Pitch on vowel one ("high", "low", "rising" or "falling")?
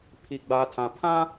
low